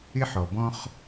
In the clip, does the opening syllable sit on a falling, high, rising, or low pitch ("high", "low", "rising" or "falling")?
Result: high